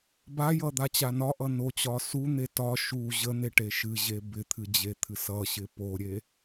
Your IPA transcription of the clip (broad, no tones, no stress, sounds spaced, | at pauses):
b a j ʌ d̪ a t͡ɕ a n ɒ ʔ ʌ n o t͡ɕ ɒ s u n̪ e t ɒ ʃ u ʑ ə n̪ e ʈ e ʃ ɨ ʑ e b ɪ t̪ʰ ɨ d͡ʑ e t̪ʰ ɨ s ʌ ɕ ɪ p o ɾʲ e